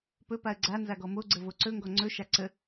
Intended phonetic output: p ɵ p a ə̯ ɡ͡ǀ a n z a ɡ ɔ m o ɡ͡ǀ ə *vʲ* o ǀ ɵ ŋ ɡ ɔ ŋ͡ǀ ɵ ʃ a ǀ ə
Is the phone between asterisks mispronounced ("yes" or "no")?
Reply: yes